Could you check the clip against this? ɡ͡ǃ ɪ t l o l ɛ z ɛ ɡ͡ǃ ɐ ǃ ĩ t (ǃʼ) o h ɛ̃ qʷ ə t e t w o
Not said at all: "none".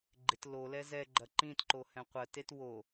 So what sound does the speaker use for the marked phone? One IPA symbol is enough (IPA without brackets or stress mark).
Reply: ǃ